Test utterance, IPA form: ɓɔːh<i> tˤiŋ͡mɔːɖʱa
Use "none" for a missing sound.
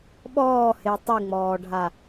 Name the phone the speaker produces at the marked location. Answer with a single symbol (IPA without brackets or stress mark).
e